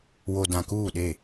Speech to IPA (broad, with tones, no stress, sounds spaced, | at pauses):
w o˨ d ã˨ k uː˦˨ ɗ e˦˨